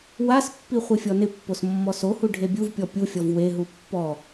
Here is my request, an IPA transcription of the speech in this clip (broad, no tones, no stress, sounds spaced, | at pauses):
w a s pː i χʷ i fʲ ɔ n ɪ pː o s mː ɔ s o h u ɖʱ e bʲ u v pʲ ɔ pʲ u fʲ ɔ v w e ɦ u pː ɔ